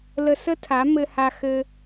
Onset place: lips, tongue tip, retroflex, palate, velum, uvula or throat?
tongue tip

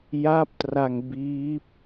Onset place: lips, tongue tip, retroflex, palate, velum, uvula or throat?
palate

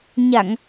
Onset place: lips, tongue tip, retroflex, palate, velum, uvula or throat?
palate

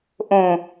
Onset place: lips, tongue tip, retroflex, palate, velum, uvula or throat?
throat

